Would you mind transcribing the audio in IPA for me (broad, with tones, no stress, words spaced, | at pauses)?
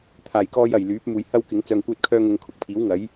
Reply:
t̪ʰaː˨˩j kɔː˧j ɐ˨˩j lyː˨˥p̚muː˨j hɐ˥wkɪ˨˥ŋ t͡sœː˧ŋkʷœː˥t̚kʰœː˥ŋʊ˧ŋ kʰʊ˨˥k̚pʰiː˨˥wŋɐ˨˥j